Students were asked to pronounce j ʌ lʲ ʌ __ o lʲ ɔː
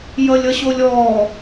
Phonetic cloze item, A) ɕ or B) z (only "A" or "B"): A